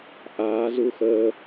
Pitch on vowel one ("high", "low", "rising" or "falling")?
rising